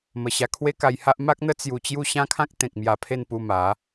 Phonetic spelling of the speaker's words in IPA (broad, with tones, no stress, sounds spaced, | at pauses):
m ə˨˩ ɕ a˧ kʰ w e˦ k a˧ j h a˦ ʔ m a˦ k̚ n̪ ə˦ t͡s j u˧ t͡ɕ j u˦ ɕ ã˦ kʰ ã˦ k̚ t̪ ẽ˨ k̚ m j a˧ pʰ e˥˧ n p u˧ m a˨˦